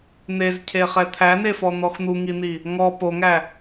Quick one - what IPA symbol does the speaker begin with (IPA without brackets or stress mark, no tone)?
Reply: n̪